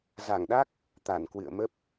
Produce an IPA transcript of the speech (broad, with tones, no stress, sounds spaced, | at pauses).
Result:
z a˧˩ ŋ ɗ a˦˥ k̚ | t̪ a˧˩ n k w ɨ̰˧˨ ə̯ m ə˦˥ p̚